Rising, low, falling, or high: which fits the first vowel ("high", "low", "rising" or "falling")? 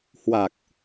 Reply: low